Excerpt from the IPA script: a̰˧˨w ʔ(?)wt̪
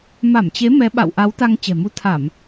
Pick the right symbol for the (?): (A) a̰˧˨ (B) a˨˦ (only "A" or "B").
B